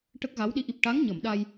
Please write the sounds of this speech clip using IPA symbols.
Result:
ʈə˦˥k̚ɣa˧˥wɗi˧˥ ʔi˨˩p̚ʈa˧˥ŋɲə˨˩˨m ɗa˧j

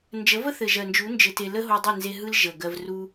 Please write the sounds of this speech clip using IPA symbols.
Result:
nd͡ʒə˨˦və˦ θɘ˨ʒɜ˨nd͡ʒu˨˦ nd͡ʒɘ˧te˧ lə˦ɦo˧dˤɯ˦˨nze˧ ɦɯ˦l ʒə˨ɡɜ˧v ru˧

